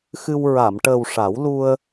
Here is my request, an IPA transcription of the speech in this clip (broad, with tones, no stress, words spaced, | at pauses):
xɨ˧w ɹa˨˩˨mʈəː˨˩w ʂa˨˩˦wlu˧ə̯